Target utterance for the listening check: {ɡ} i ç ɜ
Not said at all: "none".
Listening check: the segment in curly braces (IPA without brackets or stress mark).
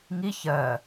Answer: ŋ